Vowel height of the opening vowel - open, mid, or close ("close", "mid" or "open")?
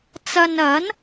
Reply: open